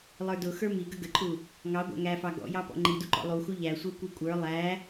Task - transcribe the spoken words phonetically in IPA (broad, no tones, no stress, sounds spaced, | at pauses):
lˠ ə˞ d ʊ x ə˞ m i ɡ ə ɡ ə ǃʼ u | ŋ ɑ ɡʷ æ̰ ŋ æ f ɑ ɡ ɔ̰ j ɑ p ɔ̰ ŋ͡ǃ i d u ǃ ɔ̰ lˠ u x u ʎ æ sʷ ə˞ kʷ i kʷʼ ə˞ lˠ æ